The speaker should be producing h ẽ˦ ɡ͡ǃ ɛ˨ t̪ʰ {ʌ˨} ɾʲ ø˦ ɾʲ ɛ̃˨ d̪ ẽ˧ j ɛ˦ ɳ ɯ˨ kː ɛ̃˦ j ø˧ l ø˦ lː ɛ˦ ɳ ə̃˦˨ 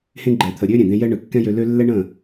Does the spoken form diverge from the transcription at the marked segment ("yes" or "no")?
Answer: yes